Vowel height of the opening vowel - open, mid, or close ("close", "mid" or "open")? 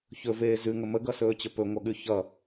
mid